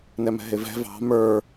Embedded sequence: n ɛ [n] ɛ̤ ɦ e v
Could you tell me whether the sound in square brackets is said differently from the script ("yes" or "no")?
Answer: yes